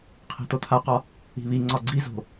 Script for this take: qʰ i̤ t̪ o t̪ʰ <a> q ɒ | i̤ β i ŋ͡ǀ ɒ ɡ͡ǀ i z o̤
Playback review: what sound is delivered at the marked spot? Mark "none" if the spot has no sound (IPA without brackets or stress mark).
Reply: a